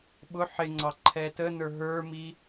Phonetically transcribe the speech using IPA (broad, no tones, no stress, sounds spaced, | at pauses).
ɓ ʊ ħ ɪ ŋ͡ǀ ɑ ǃʰ ɛ t ə n ə˞ ɦ ə˞ m i